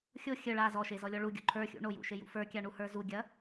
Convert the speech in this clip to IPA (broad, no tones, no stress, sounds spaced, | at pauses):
xʲ o xʲ ə ɭ a z ɔ ʃ e z ɔ lʲ ɔ ɭ u ɡʲ ṵ ǃʰ ə˞ xʲ ṵ ɳ o j ṵ ʃ e j ṵ f ə˞ kʲ a ɳ u h ə˞ z u ɡʲ ɐ